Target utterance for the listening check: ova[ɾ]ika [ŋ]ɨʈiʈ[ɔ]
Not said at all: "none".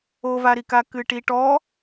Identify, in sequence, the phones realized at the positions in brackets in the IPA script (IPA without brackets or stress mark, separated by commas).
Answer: ɾ, k, ɔ